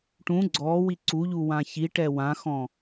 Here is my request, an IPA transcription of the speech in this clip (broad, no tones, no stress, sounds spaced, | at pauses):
ʈ ũ ɡ͡ǀ ɔ w i ǀ u ʎ u w ã ç i ʈ ɛ w ã x ɔ̃